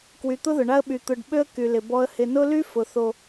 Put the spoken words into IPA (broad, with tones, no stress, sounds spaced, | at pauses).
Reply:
k w y˨ t̪ ʊ˦ ð ʊ˨ ɳ a˦ ə̯ ɓ y˨ t̪ ʊ˨ ɖ ɓ ø˦ ə̯ k y˨ l ɪ˨ b ɔ˨ ə̯ h ɪ˨ n ʊ˦ l y˦ f ʊ˨ θ o˦